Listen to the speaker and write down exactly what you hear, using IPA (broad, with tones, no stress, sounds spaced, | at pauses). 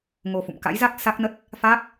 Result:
ŋ o˧ f ṵ˧˨ m k a̰˧˥ j z a˦˥ k̚ s a˦˥ k̚ n ə˦˥ t̚ | f aː˦˥ k̚